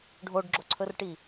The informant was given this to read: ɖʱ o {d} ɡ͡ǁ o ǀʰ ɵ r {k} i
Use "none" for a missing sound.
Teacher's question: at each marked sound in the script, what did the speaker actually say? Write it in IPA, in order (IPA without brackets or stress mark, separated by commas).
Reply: ɖ, ʈ